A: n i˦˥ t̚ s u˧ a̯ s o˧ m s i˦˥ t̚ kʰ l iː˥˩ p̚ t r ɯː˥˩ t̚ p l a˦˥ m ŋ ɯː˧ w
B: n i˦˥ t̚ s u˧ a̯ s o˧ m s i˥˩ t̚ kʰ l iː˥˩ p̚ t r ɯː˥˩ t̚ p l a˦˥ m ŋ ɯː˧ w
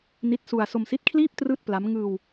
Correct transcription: A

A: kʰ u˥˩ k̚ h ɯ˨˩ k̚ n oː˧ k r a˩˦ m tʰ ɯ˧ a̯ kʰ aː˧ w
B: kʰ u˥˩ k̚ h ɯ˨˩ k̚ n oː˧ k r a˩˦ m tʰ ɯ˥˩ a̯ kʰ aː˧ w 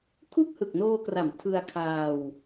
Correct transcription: A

